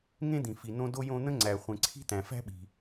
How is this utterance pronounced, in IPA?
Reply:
ŋ ẽ˥ d̪ ĩ˩ f i˩ n õ˥ d o˥ j õ˥ n̪ ə̃˥ ŋ͡ǀ æ˩ χʷ ẽ˩ ǀʰ i̤˥ t̪ æ̃˩ f æ̤˥ ɓ i̤˩

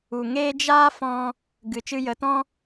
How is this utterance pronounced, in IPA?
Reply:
u˨ ŋ eː˦ d͡ʒ aː˦ f ɔ̃˧ | ɡ ɨ˨ t͡ʃ ɨ˧ j ə˨˦ t ɔ̃˦

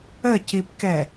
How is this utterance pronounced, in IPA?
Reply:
ə c i p k ɛ

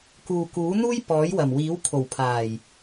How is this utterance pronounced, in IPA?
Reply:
k uː˨ k uː˨˥ n̪ uː˥ j p ɔː˨˥ j w ɐ˨˩ m w iː˨˥ w kʰ o˨˩ w pʰ aː˨˩ j

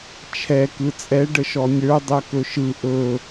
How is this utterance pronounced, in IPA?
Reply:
t͡ʃʰ ɛ k ɯ t͡sʼ ɛ ɖ ə ʃ ɔ nʲ ə˞ dˤ œ k ɵ ʃ ɯ ʔ ɵ

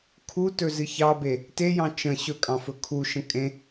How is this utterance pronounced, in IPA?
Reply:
kʰ u t ɵ z ɨ ç ɑ b e | t e j ɑ̃ t͡ʃ ə̃ ɕ ɵ kʼ ɑ̃ f ɵ kʰ u ʃ ə̃ kʼ ẽ

